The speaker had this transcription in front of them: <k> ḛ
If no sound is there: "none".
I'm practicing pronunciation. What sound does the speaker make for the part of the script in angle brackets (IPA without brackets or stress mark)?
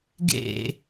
ɡ